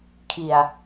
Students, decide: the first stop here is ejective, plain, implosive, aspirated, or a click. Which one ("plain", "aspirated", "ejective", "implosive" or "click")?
aspirated